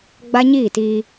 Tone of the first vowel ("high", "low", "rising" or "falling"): high